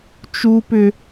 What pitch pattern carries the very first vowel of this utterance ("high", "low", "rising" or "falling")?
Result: high